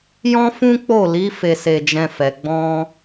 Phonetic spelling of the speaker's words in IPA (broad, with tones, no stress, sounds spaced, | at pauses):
j ɔ̃˦ f ũ˦ k͡p o˦˨ l i˨˦ f e˧ s e˧ d͡ʒ ɛ̃˧ f ɛ˨ ɡ͡b ɔ̃˧